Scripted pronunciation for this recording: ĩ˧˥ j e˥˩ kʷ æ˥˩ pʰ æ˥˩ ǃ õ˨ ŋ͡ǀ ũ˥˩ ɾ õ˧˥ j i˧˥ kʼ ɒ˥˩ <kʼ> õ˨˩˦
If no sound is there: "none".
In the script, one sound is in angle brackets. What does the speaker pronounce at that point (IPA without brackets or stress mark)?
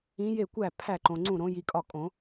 kʼ